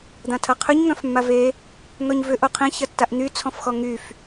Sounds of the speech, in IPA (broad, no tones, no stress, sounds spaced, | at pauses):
d̪ ã tʰ ɐ qʰ ø ɲ ŋ œ̃ f mː a v e | n̪ ɔ ɲ v ʏ ʔ o qʰ ĩ ç ɐ tː a ʔ n̪ y t͡sʰ ɔ̃ f x ɔ ŋ y f